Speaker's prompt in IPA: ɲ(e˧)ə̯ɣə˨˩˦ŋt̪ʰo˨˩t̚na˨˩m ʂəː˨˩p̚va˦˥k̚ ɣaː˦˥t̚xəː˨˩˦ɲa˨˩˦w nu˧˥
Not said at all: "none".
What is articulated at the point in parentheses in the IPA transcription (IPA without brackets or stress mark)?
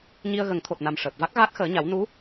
i˧